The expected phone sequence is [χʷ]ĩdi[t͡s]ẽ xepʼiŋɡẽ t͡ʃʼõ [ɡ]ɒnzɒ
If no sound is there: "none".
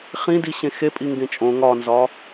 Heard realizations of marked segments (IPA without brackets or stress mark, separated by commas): χ, ɕ, ŋ